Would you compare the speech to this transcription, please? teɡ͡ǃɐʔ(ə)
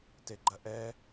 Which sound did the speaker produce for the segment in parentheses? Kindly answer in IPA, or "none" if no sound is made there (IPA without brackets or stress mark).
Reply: ɛ